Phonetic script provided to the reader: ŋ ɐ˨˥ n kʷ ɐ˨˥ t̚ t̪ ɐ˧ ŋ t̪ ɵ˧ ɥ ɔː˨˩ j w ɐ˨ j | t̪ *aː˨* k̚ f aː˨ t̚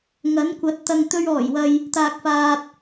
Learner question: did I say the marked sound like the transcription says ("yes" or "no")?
yes